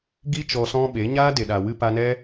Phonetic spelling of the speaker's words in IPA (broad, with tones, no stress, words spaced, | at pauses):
ɡi˦ t͡ʃɔ˧sɔ̃˦ɓe˨˦ ɲaː˦ de˨ɗa˨ wɨ˧pa˧nɛ˦